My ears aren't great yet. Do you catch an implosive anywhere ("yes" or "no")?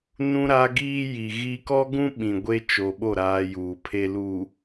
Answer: yes